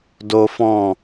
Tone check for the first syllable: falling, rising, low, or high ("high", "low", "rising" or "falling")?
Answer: high